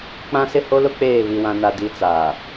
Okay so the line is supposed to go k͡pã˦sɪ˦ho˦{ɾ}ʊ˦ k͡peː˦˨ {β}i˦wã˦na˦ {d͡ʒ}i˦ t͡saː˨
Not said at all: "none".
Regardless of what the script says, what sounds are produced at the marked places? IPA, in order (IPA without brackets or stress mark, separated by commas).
l, β, d